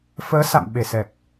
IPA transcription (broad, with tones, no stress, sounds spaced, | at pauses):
f əː˨˦ s a̰˧˨ m ɓ e˧˩ s ɛ˨˩ k̚